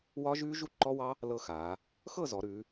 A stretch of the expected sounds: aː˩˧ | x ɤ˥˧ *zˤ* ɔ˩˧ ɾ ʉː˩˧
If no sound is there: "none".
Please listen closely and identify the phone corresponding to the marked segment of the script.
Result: z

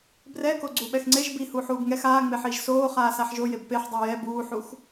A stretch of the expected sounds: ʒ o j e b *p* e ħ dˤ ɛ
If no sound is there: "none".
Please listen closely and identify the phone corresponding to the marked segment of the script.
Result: p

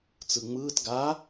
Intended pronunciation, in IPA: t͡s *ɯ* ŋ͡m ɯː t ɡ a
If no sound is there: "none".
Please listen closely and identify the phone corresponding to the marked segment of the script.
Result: ɯ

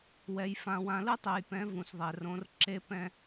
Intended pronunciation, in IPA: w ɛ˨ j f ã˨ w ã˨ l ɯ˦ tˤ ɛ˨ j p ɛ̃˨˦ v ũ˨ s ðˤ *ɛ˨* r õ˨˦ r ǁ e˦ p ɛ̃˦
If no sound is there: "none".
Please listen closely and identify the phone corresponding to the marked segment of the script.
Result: ɛ˨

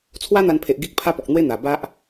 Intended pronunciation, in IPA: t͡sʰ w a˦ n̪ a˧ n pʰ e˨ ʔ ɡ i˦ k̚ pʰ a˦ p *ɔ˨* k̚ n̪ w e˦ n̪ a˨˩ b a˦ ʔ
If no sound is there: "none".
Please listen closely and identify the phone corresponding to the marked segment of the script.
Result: ɔ˨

